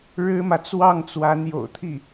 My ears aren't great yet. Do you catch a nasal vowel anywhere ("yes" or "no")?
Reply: no